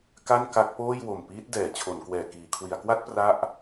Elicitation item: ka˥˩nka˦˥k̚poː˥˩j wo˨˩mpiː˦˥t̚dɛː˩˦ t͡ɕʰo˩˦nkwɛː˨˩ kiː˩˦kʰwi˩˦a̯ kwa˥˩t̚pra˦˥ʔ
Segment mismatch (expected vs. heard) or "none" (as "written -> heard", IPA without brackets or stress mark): none